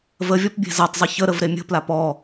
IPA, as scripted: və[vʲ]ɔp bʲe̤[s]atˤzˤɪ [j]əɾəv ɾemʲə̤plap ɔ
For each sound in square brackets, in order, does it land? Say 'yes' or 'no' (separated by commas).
yes, no, no